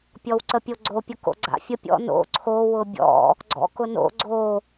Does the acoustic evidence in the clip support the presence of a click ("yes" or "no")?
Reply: yes